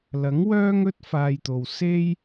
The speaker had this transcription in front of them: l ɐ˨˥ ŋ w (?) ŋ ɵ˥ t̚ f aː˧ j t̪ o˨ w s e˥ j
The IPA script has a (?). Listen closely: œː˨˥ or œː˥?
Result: œː˥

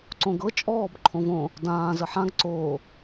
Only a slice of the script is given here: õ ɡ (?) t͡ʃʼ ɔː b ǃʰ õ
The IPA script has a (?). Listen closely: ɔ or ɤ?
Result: ɤ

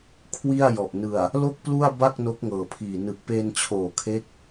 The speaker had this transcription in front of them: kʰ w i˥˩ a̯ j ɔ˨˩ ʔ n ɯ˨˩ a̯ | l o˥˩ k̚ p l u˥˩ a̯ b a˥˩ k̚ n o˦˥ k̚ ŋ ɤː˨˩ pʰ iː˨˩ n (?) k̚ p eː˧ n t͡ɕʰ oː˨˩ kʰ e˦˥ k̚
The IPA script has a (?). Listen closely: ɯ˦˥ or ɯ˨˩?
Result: ɯ˨˩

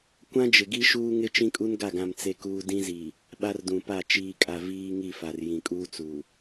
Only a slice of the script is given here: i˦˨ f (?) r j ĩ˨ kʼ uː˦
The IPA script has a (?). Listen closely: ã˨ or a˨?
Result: a˨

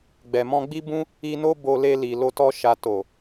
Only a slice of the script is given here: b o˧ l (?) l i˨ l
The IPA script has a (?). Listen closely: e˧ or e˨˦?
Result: e˧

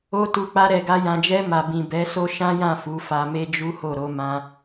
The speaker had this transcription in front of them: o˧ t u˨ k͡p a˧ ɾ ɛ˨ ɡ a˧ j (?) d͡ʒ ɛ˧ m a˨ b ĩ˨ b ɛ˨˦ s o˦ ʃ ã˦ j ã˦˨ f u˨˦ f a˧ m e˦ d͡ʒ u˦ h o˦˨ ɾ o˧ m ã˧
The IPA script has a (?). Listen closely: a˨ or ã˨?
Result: ã˨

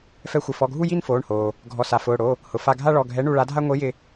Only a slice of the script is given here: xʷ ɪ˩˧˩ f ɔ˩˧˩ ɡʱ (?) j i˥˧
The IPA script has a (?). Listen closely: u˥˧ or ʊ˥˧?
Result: u˥˧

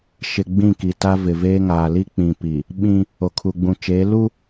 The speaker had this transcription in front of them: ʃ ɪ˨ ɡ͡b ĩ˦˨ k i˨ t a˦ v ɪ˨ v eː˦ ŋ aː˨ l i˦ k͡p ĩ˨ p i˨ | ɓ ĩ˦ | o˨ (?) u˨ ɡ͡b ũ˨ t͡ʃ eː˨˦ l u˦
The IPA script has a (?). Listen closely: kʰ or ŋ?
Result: kʰ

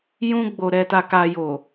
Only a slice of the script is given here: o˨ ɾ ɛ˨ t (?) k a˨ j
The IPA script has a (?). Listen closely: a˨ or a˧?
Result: a˨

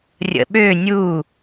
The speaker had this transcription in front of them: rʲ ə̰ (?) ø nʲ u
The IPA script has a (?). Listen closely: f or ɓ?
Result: ɓ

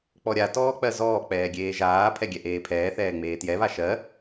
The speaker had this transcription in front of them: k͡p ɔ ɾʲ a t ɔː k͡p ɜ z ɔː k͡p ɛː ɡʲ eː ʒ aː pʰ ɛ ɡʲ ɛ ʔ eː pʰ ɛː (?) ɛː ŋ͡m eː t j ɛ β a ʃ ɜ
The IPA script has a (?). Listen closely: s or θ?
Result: θ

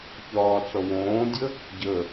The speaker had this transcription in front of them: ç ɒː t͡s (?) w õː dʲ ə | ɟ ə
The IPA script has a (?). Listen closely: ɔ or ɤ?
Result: ɔ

